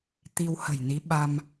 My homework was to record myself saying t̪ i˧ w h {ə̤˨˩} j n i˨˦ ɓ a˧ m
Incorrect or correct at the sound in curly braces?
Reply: correct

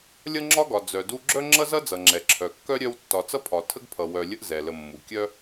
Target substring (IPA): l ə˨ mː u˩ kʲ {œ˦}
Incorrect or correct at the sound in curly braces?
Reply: incorrect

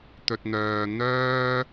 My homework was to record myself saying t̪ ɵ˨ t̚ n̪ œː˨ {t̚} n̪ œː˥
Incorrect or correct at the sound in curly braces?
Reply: incorrect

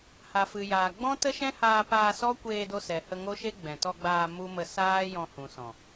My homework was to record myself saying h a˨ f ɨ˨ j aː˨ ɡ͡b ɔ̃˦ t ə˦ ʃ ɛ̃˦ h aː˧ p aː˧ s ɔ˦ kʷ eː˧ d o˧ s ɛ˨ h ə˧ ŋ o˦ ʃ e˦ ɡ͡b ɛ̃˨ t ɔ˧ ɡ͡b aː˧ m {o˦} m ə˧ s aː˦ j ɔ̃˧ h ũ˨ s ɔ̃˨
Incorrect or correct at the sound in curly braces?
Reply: incorrect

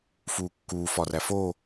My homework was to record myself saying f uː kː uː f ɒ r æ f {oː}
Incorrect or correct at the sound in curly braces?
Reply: correct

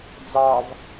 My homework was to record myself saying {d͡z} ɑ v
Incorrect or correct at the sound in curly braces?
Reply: correct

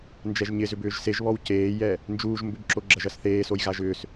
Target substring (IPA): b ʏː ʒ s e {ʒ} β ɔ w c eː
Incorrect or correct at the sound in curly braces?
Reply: correct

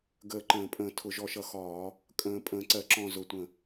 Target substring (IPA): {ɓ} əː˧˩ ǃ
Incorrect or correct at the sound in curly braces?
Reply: incorrect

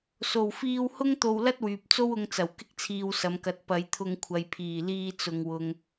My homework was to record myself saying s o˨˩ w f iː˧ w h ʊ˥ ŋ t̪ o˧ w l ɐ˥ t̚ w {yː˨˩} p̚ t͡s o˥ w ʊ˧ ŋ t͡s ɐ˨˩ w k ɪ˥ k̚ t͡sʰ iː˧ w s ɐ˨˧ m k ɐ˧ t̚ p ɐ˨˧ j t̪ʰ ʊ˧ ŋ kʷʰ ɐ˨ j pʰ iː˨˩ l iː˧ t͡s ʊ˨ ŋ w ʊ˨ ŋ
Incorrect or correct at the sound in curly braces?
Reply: incorrect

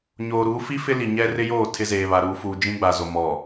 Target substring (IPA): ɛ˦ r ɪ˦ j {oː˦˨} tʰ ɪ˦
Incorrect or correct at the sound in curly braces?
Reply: correct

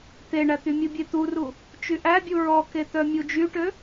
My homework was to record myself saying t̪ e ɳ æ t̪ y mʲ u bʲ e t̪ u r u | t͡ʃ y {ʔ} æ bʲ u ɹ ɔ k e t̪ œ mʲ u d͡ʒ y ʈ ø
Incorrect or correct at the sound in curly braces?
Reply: correct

